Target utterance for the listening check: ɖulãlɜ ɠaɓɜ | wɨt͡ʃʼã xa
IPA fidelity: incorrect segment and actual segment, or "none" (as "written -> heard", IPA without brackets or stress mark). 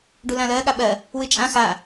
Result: none